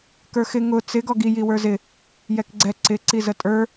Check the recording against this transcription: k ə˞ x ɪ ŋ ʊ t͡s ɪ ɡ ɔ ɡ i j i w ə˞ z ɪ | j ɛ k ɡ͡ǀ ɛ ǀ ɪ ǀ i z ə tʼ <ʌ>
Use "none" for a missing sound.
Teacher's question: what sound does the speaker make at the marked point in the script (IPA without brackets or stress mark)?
ə˞